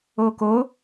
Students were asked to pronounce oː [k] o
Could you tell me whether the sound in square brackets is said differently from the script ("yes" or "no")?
no